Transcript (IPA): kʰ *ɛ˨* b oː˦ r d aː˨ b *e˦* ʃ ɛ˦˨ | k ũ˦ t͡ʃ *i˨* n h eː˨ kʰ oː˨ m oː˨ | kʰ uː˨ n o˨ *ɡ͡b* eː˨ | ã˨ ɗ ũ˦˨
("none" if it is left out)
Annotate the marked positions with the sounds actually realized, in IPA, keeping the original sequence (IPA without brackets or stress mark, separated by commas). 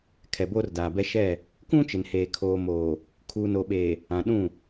ɛ˨, ɛ˦, ɪ˨, ɓ